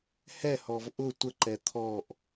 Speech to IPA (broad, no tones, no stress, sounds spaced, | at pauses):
h ɛ h ɔ v ʔ ʊ tʷ ə ǃ ɛ t̪ʰ ɔ ʔ